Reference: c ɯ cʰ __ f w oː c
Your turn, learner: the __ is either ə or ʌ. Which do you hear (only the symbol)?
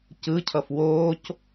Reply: ʌ